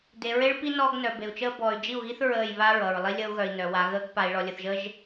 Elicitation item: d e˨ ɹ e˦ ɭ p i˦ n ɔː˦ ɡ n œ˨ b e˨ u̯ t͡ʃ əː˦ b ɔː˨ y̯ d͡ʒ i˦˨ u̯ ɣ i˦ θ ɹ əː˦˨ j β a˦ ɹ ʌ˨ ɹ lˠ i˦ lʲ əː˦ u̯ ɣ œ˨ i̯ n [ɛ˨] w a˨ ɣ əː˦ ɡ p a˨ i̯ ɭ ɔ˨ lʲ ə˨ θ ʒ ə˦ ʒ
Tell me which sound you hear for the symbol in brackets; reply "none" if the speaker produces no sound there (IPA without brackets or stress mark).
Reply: œ˨